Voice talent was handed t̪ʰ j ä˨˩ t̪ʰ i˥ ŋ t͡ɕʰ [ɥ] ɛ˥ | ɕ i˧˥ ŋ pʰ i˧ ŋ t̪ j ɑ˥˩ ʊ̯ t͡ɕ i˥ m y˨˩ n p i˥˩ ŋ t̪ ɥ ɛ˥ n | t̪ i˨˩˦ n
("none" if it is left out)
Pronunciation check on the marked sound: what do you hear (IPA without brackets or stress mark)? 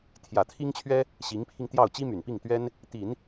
ɥ